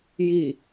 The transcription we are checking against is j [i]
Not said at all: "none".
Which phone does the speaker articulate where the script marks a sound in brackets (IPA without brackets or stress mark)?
i